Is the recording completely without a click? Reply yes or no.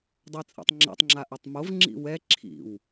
no